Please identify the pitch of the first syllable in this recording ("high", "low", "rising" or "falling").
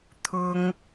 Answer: high